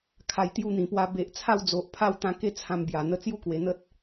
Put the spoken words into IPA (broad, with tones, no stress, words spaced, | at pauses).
kʰa˨˩jt̪ju˧n̪ĩ˨˩pwa˧ be˨ʔ t͡sʰa˥˧wd͡zo˨ʔ pʰa˥˧wt̪ã˧ke˥˧ t͡sʰã˧mbja˨˩n̪ə˧ t͡sju˥˧kwe˨˩n̪ə˦t̚